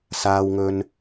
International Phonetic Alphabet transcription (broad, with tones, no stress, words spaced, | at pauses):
saː˧wŋɵ˧n